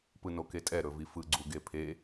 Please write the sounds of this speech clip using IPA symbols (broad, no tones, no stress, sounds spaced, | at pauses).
p ɯ n o k e tʼ ɛ ɾ ɵ v i f ɯ ɡ͡ǀ u ɡ e pʰ e